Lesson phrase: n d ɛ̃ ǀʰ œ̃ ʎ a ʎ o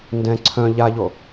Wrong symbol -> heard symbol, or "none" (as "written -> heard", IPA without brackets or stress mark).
none